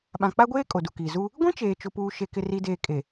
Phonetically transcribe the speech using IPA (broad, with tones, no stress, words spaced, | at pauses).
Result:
ɓã˨k͡pa˦ɡʷeː˦ kʼo˨du˨kiː˨ zu˦ | ɡʷĩ˦t͡ʃeː˨ t͡ʃʊ˨puː˨ ʃe˨kɪ˨ri˨deː˨ kʼe˨